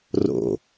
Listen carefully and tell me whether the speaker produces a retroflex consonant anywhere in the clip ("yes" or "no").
no